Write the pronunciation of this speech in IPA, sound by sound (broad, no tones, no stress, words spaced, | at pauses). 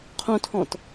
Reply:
qʰõtʰɔ̃t